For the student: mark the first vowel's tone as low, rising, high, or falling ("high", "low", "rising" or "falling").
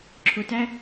low